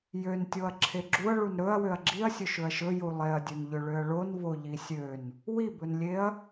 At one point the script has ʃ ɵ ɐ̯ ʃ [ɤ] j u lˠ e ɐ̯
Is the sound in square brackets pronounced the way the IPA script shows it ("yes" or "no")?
no